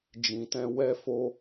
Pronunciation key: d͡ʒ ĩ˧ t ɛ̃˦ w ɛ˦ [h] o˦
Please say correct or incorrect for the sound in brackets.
incorrect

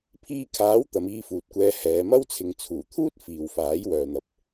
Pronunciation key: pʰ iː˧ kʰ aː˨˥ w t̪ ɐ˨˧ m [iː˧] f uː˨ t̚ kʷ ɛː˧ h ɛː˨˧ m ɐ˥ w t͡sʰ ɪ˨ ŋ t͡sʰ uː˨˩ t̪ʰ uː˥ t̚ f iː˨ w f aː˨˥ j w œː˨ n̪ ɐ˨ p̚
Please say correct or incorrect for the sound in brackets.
correct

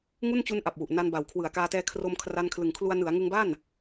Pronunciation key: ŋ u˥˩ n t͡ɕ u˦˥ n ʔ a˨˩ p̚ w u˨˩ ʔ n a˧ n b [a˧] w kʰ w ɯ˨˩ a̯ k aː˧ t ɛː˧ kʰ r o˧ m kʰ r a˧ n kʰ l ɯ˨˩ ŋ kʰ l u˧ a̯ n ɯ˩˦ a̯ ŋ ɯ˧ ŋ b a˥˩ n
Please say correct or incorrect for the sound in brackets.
incorrect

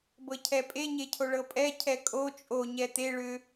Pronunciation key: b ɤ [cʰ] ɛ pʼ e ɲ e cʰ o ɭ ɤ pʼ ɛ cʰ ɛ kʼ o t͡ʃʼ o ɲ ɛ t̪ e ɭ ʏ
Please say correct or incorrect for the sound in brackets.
correct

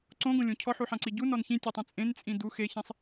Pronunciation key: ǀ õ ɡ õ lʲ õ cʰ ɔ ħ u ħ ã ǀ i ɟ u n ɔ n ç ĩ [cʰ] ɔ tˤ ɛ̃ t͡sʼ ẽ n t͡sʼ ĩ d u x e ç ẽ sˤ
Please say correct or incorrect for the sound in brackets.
incorrect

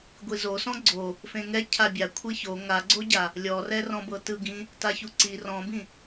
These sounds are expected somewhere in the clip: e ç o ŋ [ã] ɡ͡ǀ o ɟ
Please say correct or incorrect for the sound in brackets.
incorrect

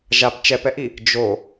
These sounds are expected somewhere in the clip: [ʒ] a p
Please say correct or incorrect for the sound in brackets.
correct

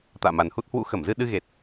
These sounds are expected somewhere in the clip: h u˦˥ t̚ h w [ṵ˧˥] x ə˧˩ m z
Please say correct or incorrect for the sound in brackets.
correct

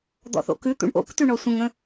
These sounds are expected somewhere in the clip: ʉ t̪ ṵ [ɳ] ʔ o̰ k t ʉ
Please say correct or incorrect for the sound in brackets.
correct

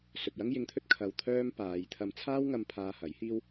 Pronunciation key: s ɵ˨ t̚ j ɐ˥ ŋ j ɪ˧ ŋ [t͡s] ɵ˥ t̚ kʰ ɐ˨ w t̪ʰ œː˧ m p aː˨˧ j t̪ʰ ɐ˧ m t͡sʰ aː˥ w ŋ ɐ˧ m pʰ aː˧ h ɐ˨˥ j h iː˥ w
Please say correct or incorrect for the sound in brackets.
incorrect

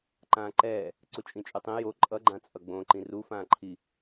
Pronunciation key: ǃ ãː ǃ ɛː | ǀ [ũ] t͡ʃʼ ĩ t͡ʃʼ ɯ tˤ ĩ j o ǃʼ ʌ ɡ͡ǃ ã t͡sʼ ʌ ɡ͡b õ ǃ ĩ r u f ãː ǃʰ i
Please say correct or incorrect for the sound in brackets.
incorrect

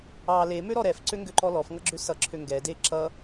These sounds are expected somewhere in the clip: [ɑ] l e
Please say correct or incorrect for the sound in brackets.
correct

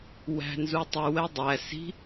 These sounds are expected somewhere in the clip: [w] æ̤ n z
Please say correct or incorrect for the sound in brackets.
correct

